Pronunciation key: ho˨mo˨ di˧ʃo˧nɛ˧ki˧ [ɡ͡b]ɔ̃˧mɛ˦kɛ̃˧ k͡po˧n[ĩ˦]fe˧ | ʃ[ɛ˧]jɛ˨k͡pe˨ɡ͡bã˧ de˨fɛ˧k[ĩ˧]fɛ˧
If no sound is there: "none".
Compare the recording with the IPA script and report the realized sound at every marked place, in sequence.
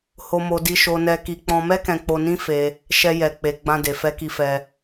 k͡p, ĩ˦, ɛ˧, i˧

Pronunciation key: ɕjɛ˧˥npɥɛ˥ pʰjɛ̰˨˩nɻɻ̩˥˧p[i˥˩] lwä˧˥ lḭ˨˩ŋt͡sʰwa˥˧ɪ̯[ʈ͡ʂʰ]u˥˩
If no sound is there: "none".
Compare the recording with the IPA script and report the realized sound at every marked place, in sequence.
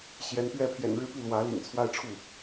i˥˩, ʈ͡ʂʰ

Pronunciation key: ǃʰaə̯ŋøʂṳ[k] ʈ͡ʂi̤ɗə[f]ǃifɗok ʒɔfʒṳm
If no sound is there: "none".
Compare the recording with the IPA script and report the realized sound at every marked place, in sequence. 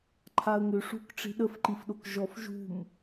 k, f

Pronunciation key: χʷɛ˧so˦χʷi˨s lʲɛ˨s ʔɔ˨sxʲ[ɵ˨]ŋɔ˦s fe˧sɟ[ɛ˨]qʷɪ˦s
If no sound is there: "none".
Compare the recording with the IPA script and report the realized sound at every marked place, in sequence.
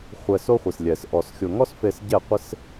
ʊ˨, ɛ˦˨

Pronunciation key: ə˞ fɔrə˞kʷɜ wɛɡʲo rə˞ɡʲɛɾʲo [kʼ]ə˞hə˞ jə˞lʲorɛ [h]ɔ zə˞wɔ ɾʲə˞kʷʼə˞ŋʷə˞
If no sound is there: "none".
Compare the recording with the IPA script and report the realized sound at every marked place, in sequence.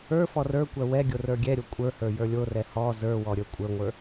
kʷʼ, h

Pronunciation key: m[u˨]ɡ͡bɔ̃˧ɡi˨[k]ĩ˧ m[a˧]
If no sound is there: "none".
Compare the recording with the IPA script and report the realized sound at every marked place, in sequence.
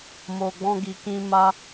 o˨, k, a˧

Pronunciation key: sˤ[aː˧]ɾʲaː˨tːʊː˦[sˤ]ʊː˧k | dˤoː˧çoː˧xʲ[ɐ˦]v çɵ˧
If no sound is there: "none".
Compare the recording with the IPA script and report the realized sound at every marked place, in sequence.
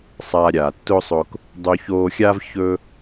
aː˧, sˤ, a˦

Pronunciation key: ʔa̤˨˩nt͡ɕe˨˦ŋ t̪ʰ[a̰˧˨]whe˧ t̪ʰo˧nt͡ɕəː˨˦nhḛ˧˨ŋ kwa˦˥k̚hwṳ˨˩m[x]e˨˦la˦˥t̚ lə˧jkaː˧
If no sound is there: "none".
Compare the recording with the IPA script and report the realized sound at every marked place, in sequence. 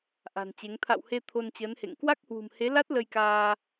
a̰˧˨, h

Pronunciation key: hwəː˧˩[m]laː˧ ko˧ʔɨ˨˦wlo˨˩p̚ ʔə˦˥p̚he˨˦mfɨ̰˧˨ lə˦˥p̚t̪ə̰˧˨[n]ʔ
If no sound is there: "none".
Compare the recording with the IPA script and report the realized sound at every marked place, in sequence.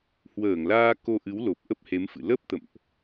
ŋ, m

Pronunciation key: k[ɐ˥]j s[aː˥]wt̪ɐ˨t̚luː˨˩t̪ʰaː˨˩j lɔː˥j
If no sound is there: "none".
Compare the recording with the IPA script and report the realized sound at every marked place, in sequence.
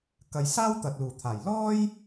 ɐ˨, aː˥

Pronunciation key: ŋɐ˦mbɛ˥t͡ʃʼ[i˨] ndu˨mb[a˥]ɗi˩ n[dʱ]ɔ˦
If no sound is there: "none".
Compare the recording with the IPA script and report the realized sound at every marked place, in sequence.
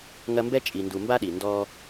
i˨, a˥, d

